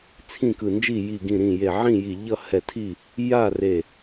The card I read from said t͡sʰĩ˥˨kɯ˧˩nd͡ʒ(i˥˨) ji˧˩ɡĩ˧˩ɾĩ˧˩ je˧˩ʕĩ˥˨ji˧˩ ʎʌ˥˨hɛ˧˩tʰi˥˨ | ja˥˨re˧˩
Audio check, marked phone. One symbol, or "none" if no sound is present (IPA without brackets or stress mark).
i˥˨